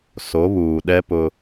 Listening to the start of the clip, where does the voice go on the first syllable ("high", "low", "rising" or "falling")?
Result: rising